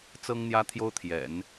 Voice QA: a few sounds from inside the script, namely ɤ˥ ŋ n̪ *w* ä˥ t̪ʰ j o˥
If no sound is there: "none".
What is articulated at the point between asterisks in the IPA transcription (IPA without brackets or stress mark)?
j